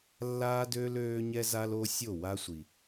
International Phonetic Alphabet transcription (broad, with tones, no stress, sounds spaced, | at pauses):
lː aː˦ d øː˦ l øː˦ ɲ ɛ˦ z a˦ l o˦ sʲ o˦˨ w a˦ sʷ i˨